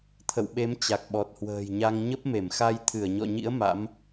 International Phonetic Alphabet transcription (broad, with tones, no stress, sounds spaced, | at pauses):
t̪ʰ ə̰˧˨ w ɓ e˨˦ m t͡ɕ a˨˩ k̚ ɓ ɔ˨˩ t̚ h w ə̤ː˨˩ j ɲ a˧ ŋ ɲ ə˦˥ p̚ m e˧˩ m x a˧ j t̪ʰ ɨ˧˩ ə̯ ɲ ɔ̰˧˨ ɲ ḭ˧˥ ə̯ m a̰˧˥ m